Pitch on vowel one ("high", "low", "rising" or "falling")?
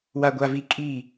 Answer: low